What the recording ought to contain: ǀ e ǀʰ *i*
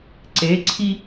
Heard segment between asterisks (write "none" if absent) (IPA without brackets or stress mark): i